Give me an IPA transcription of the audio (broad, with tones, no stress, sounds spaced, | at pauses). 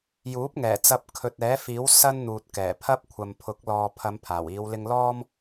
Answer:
j uː˨˥ p̚ ŋ ɛː˨˩ t͡s ɐ˧ p̚ kʰ ɵ˨ t̚ ɛː˨˥ f iː˨˥ w s ɐ˥ n n̪ uː˨ t̚ k ɛː˨˩ pʰ ɐ˥ p̚ kʷʰ ɐ˨ m pʰ ʊ˨˥ k̚ l ɔː˨ pʰ ɐ˨˧ m pʰ aː˨˩ w iː˨˧ w l ɪ˧ ŋ l ɔː˥ m